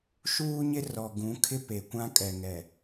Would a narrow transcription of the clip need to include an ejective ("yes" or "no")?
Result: yes